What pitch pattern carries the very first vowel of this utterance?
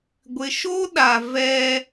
low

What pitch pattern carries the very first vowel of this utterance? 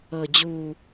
low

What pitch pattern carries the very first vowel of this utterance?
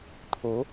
rising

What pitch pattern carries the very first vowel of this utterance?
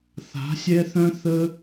rising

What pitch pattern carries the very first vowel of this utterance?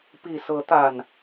low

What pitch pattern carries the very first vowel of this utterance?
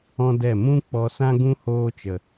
high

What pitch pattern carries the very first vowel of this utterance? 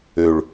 high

